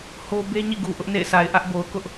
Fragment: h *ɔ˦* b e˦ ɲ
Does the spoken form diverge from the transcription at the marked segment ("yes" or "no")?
yes